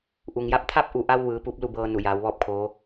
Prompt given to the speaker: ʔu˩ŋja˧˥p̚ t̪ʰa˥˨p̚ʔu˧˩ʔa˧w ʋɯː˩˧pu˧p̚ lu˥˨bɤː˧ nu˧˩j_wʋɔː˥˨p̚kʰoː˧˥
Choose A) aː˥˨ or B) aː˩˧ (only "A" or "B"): B